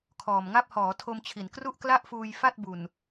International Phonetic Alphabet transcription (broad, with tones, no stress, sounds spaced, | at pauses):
kʰ ɔː˨˩ m ŋ a˥˩ p̚ h ɔː˩˦ tʰ o˧ m t͡ɕʰ i˨˩ n k r u˥˩ ʔ k l a˥˩ ʔ f uː˧ j f a˥˩ t̚ b u˨˩ n